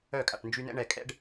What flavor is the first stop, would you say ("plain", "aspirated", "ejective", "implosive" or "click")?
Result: ejective